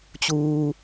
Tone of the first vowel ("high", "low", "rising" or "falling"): low